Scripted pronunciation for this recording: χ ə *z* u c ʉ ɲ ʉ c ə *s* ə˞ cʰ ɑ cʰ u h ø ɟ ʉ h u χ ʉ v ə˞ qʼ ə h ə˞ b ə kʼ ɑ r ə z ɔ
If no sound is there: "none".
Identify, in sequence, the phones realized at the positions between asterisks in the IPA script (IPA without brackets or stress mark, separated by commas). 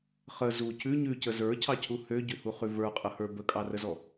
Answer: z, z